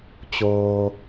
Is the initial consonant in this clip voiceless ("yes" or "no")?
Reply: yes